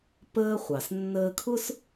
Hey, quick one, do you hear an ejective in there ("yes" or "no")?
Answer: no